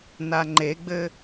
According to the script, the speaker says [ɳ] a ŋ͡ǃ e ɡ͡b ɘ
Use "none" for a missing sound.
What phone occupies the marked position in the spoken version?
n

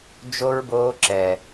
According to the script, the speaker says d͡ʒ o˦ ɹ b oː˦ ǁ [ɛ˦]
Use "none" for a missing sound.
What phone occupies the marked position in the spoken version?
ɛ˦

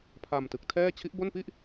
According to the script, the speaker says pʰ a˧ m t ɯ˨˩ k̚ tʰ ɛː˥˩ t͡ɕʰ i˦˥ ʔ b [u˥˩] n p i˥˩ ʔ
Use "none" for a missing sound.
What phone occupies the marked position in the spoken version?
o˥˩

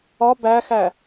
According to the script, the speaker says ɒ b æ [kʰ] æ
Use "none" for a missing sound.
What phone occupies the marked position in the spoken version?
x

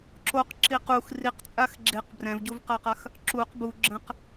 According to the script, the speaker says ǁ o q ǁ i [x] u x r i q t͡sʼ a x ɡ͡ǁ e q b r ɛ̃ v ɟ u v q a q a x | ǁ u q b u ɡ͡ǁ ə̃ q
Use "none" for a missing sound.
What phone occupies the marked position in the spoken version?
q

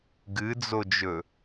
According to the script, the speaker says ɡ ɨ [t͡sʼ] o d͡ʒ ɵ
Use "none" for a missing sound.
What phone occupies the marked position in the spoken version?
d͡z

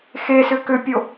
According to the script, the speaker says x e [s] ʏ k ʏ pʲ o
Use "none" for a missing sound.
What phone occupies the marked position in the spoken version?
s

